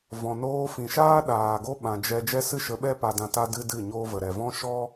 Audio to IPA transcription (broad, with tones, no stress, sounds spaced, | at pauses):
v ɔ̃˨ n oː˧ f ĩ˨ ʃ aː˦ ɗ aː˨ ɡ o˦ ɓ ã˨ d͡ʒ ɛ˧ d͡ʒ ɛ˦ s ɨ˦ ʃ ə˨˦ ɓ ɛ˦ p a˧ d ã˧ t a˦ d ɨ˦ d ɨ˦˨ ɲ oː˧ v ə˨ ɾ ɛ˨ v ɔ̃˦ ʃ ɔ˦